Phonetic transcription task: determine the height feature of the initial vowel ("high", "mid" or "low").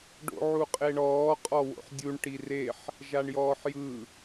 mid